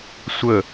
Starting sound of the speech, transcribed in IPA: sʷ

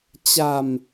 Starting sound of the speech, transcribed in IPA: t͡ɕ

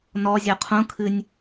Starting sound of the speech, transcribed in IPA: n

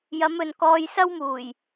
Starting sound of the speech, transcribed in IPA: j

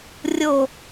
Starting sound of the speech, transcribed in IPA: rʲ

